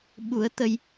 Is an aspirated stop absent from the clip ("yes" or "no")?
yes